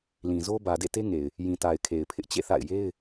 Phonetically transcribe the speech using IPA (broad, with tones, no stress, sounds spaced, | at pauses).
l ĩ˨ z o˦ b ä˨ d ḛ˦˨ t e˦ ŋ e˨ ɪ̯ | j ĩ˨ t a˨ ɪ̯ kʰ e˨ ɪ̯ pʰ ɪ˦ ʔ t͡ɕ ḛ˦˨ θ a̰˦˨ ɪ̯ j e˦ ɪ̯